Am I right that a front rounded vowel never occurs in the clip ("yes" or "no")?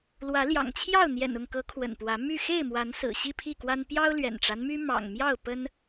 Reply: no